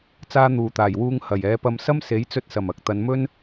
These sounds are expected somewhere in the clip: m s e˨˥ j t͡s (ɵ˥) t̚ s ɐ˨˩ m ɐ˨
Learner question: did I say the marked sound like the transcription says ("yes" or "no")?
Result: no